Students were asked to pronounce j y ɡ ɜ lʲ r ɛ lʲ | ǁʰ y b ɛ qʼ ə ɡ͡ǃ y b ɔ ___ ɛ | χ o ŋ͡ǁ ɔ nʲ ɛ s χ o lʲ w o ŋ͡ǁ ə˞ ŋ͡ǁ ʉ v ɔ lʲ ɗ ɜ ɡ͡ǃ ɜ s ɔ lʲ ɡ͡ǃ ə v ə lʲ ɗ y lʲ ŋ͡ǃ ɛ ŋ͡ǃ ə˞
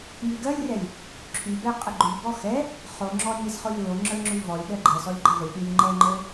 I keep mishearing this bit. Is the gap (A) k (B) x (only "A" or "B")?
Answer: B